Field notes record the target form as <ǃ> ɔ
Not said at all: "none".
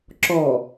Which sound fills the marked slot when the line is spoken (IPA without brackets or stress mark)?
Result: ǁ